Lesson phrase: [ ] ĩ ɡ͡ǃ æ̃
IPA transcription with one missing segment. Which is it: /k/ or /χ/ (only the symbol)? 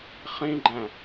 χ